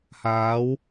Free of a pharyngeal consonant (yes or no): yes